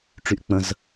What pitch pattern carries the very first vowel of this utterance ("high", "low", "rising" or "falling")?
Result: low